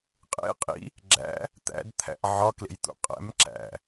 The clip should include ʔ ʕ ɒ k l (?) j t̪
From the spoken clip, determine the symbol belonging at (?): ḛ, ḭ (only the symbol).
ḛ